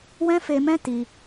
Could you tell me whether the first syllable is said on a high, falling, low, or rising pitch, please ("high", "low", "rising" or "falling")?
high